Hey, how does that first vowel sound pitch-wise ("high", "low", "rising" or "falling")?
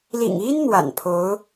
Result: low